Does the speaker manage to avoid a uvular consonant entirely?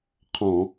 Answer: no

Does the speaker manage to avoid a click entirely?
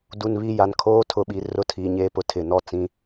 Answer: yes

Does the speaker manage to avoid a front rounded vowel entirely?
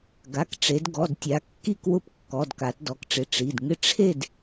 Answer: yes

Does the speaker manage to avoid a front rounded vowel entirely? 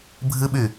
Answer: no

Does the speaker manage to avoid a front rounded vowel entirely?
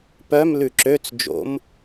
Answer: no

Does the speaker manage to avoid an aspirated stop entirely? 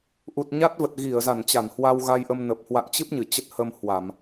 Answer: yes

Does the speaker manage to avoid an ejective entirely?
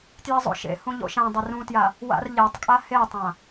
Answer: no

